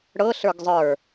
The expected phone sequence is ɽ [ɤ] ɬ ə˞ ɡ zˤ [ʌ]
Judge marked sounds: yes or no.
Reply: yes, no

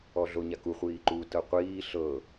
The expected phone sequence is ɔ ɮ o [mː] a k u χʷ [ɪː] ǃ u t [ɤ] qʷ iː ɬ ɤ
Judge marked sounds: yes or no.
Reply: no, no, yes

